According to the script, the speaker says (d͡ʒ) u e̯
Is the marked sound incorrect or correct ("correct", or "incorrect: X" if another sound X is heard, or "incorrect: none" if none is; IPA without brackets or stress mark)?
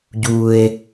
incorrect: ɟ